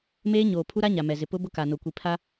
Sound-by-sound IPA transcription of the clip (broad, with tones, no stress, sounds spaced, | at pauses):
m eː˦ ɲ oː˨ pʰ u˦ ɾ a˦ ɲ a˨ m ɛ˨ z ɪ˨ p ʊ˦ b ʊ˦ k a˨ n o˨ kʷ i˨ pʰ a˦